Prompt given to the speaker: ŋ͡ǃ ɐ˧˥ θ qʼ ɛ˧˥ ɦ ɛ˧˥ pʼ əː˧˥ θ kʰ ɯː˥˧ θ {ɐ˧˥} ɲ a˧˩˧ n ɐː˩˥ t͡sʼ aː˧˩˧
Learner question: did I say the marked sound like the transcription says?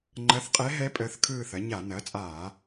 no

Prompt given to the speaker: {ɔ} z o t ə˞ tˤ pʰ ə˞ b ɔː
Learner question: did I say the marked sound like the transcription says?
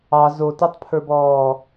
no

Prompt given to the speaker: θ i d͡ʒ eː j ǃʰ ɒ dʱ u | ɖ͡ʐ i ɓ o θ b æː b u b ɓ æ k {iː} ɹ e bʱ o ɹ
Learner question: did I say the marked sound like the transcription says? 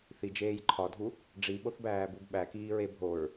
yes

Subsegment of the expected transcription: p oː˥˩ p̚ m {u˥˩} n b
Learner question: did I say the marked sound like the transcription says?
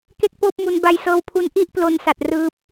no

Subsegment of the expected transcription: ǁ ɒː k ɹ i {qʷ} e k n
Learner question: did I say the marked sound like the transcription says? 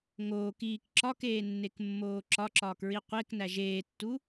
yes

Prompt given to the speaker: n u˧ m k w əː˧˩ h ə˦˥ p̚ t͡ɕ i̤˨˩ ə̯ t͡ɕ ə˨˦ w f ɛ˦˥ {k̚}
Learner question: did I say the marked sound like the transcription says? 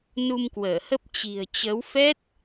no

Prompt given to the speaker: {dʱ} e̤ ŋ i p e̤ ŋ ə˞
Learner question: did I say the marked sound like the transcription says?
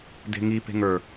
no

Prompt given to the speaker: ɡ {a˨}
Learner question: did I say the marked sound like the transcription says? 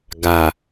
yes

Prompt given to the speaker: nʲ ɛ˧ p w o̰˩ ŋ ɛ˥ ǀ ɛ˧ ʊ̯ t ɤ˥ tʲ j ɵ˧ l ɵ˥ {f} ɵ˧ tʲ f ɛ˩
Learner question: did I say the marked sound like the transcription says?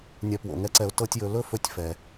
yes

